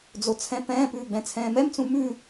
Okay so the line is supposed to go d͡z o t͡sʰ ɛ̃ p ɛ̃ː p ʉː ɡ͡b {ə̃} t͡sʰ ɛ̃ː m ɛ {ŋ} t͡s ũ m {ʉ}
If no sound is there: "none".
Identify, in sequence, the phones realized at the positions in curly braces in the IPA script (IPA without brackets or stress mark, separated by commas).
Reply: ɛ̃, m, ʉ